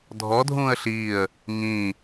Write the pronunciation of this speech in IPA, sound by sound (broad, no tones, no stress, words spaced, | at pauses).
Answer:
dʱɔdʱũːə̯ ɬiːə̯ | ŋĩː